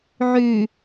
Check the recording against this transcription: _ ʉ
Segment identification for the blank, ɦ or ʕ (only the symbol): ʕ